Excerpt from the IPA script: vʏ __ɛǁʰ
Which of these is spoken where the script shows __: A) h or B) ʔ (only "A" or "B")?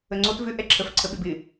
B